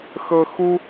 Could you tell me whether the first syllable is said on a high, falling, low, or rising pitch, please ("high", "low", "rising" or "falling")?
high